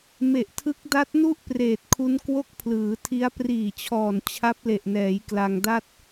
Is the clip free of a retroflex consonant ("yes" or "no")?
yes